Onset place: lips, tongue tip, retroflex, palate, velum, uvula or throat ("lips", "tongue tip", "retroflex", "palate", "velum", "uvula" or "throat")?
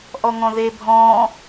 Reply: throat